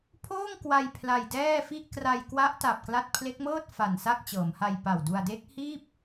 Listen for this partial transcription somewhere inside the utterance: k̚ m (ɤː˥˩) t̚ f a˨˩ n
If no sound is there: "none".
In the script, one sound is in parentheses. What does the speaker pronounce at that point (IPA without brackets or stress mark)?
ɤː˥˩